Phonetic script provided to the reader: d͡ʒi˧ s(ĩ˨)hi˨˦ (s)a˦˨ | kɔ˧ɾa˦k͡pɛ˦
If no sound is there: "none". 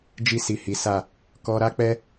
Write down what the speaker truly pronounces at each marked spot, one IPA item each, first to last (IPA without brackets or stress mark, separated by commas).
i˨, s